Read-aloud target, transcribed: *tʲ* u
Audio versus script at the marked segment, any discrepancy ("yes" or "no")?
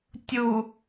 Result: no